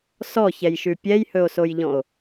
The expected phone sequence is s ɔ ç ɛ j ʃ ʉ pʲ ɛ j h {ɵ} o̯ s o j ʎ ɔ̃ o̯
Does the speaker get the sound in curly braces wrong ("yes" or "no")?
no